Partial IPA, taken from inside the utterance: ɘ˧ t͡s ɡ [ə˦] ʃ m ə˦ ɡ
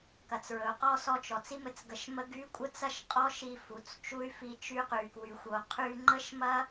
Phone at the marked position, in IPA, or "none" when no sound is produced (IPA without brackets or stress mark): ə˧